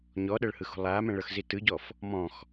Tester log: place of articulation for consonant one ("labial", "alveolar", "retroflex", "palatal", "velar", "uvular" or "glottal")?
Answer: palatal